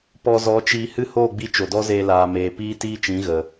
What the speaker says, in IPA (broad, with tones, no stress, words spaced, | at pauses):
pɔ˧zɔ˨˦t͡ʃiː˧ hɨ˦hoː˦˨ɡ͡bi˧ t͡ʃo˨dɔ˦zeː˧ laː˨meː˨ piː˦ tiː˦t͡ʃĩ˨˦ɣə˨